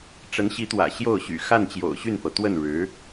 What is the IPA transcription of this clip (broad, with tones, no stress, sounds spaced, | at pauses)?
ʈ͡ʂ ə˧˥ n ɕ i˧˥ t̪ w ä̰˨˩ ɕ j o˥˩ ʊ̯ ɕ y̰˨˩ x a˥˩ n t͡ɕ j o̰˨˩ ʊ̯ ɕ y˥˩ n f ɤ˩ t̪ w ə˥˩ n ɻ ɻ̩˧˥